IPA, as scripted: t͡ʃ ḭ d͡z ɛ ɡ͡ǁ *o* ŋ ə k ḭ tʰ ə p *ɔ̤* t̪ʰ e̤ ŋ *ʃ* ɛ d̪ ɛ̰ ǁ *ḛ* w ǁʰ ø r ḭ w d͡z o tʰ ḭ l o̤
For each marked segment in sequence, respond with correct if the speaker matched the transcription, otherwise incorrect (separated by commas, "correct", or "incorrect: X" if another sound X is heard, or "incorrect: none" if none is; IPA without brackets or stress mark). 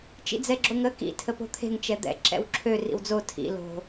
correct, incorrect: o̤, incorrect: t͡ʃ, incorrect: ɛ̰